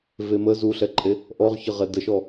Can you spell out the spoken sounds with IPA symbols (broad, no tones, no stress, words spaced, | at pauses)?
vemə zuɬɛǃʼe | ʔɔʁçəʁɛ dəʃɔ